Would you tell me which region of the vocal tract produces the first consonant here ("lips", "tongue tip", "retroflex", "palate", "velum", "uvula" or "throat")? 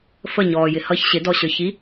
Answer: lips